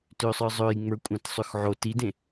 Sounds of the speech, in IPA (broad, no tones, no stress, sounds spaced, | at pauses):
t ø sˤ ə˞ zˤ ø j ŋ͡m ə˞ kʷʼ ã t sˤ ø x ʕ o t i d ẽ